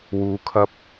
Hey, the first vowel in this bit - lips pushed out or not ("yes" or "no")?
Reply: yes